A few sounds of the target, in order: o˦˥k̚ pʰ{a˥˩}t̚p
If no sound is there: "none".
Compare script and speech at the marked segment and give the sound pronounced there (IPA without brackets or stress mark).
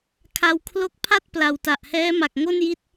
a˥˩